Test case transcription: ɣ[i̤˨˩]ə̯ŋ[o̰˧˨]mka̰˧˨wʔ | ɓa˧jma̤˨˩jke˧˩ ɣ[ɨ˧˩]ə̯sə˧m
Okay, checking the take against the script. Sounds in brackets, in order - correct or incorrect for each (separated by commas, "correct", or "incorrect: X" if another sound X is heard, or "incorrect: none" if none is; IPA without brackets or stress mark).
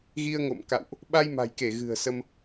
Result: incorrect: i˧, correct, incorrect: ɨ̤˨˩